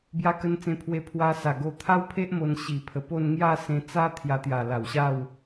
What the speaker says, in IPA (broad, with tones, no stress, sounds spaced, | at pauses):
b j a˧ k ə˧ n t͡s ẽ˧ pʰ w e˧ pʰ w a˧ s a˨˩ ɡ o˧ t̪ʰ a˦ w pʰ e˦ ʔ m o˧ n ɕ i˨˩ pʰ ə˨˩ p o˥˧ n ŋ j a˥˧ s ẽ˧ t͡s a˦ t̪ʰ j a˧ t̪ j a˨˩ l a˨˩ w ɕ a˥˧ w